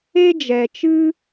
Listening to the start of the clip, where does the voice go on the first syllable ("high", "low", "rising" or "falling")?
high